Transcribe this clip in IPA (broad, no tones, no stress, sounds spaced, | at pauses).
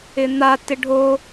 ɪ n̪ a t ɪ ɖʱ o